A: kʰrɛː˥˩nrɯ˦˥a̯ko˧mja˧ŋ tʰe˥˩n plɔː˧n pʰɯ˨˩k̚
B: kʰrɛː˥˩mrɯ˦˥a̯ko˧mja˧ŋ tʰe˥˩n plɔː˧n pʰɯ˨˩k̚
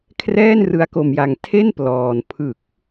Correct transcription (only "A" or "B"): A